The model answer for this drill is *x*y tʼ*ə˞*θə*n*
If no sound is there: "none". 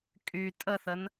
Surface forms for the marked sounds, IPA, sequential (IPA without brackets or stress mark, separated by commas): kʼ, ə, n